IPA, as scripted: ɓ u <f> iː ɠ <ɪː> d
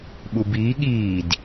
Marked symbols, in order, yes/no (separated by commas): no, no